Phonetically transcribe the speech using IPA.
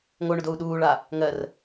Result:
ŋoɳʊdou̯ ɗuːɭa | ŋɜr

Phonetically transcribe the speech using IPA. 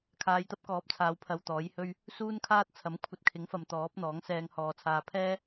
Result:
kʰaː˨˧jt̪ɐ˥p̚kɔː˨˥p̚t͡sʰaː˨˧w pʰɐ˧wt̪ɔː˨˥jhɵ˥ɥ | suː˥nkʰaː˥t̚ t͡sʰɐ˨˥mkʷʰɐ˧t̚kʰɪ˨˥ŋfɐ˨m t̪ɔː˨˥p̚n̪ɔː˨˥ŋ sɛː˧ŋhɔː˨t͡sʰaː˧ pʰɛː˥

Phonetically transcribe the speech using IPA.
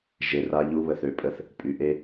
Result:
ʒe˨ra˧ ʎu˦βə˨θø˦pʼə˧θ | pʼy˨ ʔe˦

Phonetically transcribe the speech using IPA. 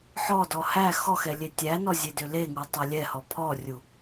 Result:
ħɔdɔ hæ xɔxɛ lʲetʲænɔ zʲedʏleŋu tˤælʲɛhɔ pʰɔrʲu

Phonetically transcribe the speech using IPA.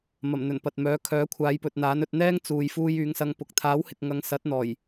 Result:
mɐ˨˩m n̪ɵ˨˩npɐ˨t̚mœː˨˥ kʰœː˨˥kʷʰaː˨˧jpɵ˨t̚n̪aː˨˥n ɵ˧t̚n̪ɛː˥ŋ t͡suː˨jfuː˧j yː˨˧ŋsɐ˧ŋ pʊ˨k̚ t̪ʰaː˨˥whɪ˨k̚ŋɐ˨˧ŋ sɐ˨˥t̚n̪ɔː˨˩j

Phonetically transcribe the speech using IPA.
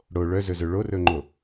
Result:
ɽo ɭœzɵzɵ ɭorɵŋ͡ǃo

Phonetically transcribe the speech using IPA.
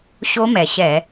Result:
ɕo˦˥mɛ˩ɕɛ˧˩˧

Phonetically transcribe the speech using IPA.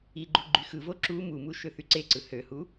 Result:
iɡ͡ǃu ɡ͡ǃyxɯvo ǁu mumu ʃøθyǀeǀɯ høhu

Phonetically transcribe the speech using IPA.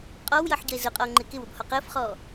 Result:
qʼɔwjʌħɟʌe̯ zʊqʼɔo̯ ŋ͡ǃɪkɪwʊb hɔqəːfχɔː

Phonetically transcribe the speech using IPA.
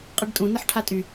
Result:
qʼəɖtʼũ nɐħʈʰatʼy

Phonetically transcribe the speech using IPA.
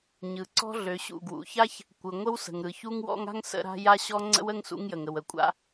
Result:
ɲɯ˩ ǀɔ̤˥ɮø˩ɕṵ˩ ɡwṵ˩ça˥ç | kʷɯ˩ ŋʷə˥wsə̤˩ŋ ɾɯ˩çu˥ŋwɔ̰˥ŋ a̤˥ŋ sə̰˥ɾa̤˥ ja˥ɕɔ˥ ŋ͡ǀə̰˥wə˥ŋ sṵ˥ŋjə˩ŋə˩w ə˩kʷʼa̰˥

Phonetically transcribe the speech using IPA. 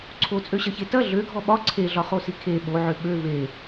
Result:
ǀʰot͡sʼøɕɐçe tɐ ɮøɡʱɔ ɓɒ ǀʰeɮɒχosi kʰe ɓoʕʏ ɓø ve

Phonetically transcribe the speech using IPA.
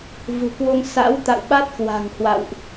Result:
vṳ˨˩kwo˧ŋ sa̰˧˥wt̪a̰˧˨wɓa˦˥t̚kwa̤˨˩ŋ hwa̰˧˨wʔ

